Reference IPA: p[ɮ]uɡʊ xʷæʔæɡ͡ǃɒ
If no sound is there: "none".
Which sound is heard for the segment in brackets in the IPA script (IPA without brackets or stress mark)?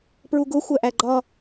ɹ